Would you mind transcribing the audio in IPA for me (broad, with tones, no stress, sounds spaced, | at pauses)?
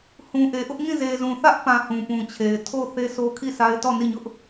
h ũ˨ ʔ e˨ ʔ ʊ˦ ʔ ŋ ĩ˦˨ z e˨ z ũ˨ θ ä˦ ʔ p ã˨ h ũ˨ p ũ˨ t͡ɕʰ e˨ ɪ̯ tʰ o˦˨ θ e˦ s o˦ kʰ i˦˨ s a˦ ɪ̯ t ɔ˦˨ n i˦˨ ɲ ʊ˦ ʔ